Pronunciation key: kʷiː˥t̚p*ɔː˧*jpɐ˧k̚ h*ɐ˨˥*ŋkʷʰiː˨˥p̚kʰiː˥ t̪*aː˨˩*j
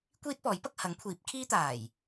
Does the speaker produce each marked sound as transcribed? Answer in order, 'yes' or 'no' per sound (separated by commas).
no, yes, yes